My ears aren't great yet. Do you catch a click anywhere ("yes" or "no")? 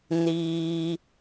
no